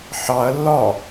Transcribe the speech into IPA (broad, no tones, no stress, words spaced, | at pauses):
ħɑɐ̯ lːɒ